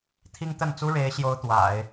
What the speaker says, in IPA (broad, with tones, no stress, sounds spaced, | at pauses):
t̪ʰ i˥ ŋ t̪ ə˥˩ n t͡s u˥ ɻ e˧˥ ɪ̯ ɕ j o˥ ʊ̯ t̪ w a̰˨˩˦ ɪ̯